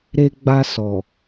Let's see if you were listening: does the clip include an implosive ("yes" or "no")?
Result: no